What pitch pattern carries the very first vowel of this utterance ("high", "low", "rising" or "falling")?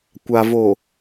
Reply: low